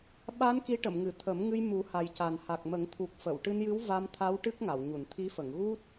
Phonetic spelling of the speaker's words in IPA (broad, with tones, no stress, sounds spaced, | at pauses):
ɓ a˧˥ n k i˧˥ ʈ ə˨˩˨ m ŋ ɨ˨˩˨ t̪ʰ ə˨˩˦ m ŋ ɨ˧ j m u˨˩˦ h a˨˩ j c a˨˩ n h a˨˩ k̚ m ə˨˩˦ ŋ t̪ʰ u˨˩ k̚ f ə˨˩˨ w ʈ ɨ˧ n j ɨ˧˥ w v a˧ m t̪ʰ a˧˥ w ʈ ɨ˦˥ k̚ ŋ a˨˩˨ w ɲ u˨˩˨ n t̪ʰ i˧˥ f ə˨˩˨ ŋ ɣ u˦˥ t̚